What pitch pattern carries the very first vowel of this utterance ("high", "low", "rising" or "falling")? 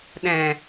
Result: low